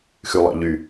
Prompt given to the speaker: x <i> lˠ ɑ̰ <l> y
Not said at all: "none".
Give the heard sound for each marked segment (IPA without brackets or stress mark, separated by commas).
y, ʎ